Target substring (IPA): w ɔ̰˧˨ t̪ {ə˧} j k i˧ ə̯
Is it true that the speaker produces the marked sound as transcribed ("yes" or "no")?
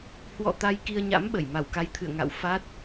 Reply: no